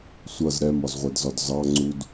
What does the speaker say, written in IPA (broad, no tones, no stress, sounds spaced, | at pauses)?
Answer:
sʷ ʌ z ɾ ɛ m ɒ z ʁʷ ɛ d z ɒ d z ɑ ŋ͡ǀ u d